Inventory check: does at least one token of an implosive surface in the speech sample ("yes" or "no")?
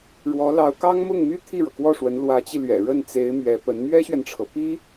no